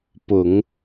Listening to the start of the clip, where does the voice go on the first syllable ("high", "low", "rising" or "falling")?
low